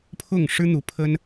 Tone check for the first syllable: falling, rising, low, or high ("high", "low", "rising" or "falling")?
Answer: falling